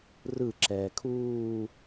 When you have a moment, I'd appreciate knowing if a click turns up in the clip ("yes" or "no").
yes